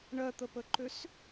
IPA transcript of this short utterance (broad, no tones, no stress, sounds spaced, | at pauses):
ɳ ɜ t̪ ə p ə ǃ ø s